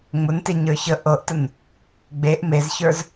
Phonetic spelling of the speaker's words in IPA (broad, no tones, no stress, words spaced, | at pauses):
ŋ͡mʊnteɲə˞çə ʔɤʔtən | ɡ͡beʔ mezçə˞z